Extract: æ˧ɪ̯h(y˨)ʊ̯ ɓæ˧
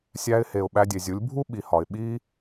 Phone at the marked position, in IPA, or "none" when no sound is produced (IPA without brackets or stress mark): e˨